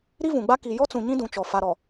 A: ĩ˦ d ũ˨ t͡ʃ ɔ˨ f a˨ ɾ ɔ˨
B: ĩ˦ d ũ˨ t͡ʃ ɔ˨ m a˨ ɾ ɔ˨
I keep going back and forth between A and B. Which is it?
A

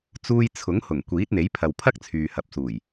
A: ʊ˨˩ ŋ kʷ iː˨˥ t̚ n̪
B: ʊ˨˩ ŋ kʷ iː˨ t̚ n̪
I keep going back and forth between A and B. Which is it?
A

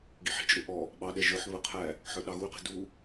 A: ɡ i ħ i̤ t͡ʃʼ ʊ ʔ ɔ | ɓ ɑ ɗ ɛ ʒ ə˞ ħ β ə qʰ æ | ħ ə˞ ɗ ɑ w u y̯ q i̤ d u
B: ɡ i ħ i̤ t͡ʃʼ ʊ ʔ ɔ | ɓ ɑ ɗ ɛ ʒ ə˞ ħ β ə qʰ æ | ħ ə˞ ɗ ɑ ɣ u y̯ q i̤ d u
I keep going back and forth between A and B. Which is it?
B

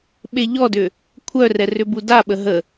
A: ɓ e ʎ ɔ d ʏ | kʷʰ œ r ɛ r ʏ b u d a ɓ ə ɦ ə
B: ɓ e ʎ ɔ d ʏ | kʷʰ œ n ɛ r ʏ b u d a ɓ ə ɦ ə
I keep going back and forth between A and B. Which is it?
A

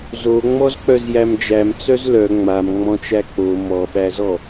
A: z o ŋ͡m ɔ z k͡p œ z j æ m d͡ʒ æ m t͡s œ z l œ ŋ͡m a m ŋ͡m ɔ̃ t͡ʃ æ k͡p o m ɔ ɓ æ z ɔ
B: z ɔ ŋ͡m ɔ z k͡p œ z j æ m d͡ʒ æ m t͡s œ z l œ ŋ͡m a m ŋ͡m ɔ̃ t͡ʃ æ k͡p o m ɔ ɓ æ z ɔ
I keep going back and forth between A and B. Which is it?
A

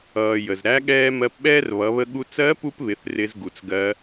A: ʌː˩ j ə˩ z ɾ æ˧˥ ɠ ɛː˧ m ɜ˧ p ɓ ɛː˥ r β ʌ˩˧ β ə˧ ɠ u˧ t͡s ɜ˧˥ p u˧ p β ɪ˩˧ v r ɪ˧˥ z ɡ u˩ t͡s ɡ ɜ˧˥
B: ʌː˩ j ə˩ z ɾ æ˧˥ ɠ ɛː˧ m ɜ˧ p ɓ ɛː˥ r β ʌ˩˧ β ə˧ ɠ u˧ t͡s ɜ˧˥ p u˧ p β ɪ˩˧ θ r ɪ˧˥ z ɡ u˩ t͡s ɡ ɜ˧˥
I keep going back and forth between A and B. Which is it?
B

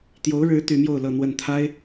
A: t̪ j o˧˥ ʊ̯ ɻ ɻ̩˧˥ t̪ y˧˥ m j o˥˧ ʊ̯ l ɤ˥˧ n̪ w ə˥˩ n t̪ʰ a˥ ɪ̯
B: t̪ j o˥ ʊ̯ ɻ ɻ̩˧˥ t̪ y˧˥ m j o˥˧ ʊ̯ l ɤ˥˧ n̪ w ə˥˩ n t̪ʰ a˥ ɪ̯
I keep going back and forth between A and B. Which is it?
A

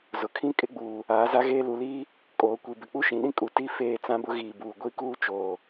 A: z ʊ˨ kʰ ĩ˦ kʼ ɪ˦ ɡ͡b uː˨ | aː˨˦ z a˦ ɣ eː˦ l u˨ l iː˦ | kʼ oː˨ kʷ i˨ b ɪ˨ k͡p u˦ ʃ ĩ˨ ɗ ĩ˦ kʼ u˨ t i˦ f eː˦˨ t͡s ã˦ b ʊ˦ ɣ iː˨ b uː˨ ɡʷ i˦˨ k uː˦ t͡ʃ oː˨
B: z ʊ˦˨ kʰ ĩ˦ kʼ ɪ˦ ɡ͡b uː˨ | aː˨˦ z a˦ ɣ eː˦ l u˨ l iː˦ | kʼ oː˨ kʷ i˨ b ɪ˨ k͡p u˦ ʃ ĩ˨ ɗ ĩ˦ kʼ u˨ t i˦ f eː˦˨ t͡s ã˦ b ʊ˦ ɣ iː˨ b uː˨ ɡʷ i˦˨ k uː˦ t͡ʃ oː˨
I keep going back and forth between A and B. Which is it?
A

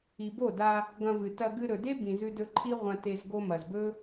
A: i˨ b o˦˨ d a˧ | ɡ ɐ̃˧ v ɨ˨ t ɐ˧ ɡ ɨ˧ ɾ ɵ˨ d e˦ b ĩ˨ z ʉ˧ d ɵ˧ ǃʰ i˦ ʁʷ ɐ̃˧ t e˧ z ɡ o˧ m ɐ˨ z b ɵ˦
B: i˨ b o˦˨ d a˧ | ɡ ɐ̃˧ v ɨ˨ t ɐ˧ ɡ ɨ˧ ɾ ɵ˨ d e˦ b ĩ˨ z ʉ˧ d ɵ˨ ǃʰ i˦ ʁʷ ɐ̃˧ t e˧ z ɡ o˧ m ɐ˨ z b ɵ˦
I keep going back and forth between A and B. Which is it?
A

